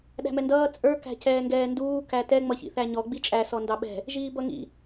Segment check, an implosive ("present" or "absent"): present